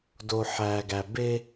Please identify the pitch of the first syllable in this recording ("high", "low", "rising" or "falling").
low